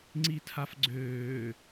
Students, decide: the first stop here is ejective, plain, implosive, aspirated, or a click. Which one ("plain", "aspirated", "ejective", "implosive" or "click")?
click